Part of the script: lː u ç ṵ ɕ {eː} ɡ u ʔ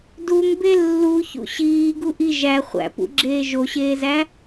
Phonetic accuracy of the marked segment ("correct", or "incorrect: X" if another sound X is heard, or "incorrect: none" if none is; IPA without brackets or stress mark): incorrect: iː